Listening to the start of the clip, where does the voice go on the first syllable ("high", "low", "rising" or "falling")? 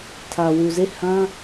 low